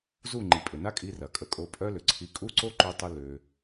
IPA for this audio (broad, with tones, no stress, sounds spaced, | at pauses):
z u˦˨ ŋ͡ǃ i˨ pʼ ʏ˨ n a˦ kʼ i˧ r ɐ˨ kʼ ə˧ kʼ o˧ pʼ œ˦ l ʏ˨ ǀʰ i˧ kʼ u˦˨ ǀ o˦ ǃ ø˧ tˤ ə˧ l ø˧